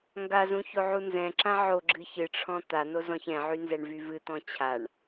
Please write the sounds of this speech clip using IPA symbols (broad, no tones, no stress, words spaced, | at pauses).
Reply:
ŋɡazũ çoʕunzɛ̃ǁã ʕo ɡ͡ǁɨçɨʈ͡ʂʰɔ̃ t̪ano zɔ̃çɛ̃ʕy nzɛɳvyvɨt̪ɔ̃ t͡ɕʰaɳ